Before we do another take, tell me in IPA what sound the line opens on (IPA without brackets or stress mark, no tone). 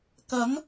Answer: k